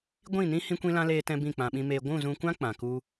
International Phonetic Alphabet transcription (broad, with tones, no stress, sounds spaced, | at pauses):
ɡʷ ĩ˦˨ n ĩ˦ h ĩ˦ kʷ ĩ˦ l ã˦ l eː˦ t ɛ̃˦ b ĩ˦˨ k͡p ã˨ ɓ ĩ˧ m eː˧ ɡʷ ũ˦˨ z ũ˧ kʷ ã˦ k͡p ã˨ k u˦